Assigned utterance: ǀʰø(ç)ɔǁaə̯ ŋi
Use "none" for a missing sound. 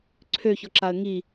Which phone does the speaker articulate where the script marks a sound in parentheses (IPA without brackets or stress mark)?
ç